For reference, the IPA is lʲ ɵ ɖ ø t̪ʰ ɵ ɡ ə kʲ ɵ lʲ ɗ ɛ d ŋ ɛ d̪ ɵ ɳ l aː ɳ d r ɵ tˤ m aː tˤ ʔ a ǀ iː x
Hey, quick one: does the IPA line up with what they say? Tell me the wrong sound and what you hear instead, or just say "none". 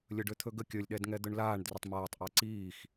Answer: none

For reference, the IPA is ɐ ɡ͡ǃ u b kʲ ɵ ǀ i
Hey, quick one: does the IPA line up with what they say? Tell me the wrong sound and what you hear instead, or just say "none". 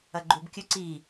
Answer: none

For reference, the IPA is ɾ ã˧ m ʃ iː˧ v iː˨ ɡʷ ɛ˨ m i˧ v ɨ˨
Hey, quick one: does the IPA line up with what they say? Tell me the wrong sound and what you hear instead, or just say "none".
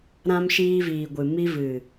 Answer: ɛ˨ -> ɨ˨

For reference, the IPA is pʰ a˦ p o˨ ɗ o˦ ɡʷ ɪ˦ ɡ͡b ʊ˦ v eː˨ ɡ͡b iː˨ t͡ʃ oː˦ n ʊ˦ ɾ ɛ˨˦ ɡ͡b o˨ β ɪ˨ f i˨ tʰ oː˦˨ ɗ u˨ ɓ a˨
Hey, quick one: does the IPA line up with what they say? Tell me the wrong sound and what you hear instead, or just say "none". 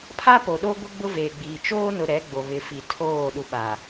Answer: none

